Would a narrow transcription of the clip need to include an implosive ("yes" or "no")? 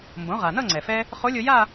no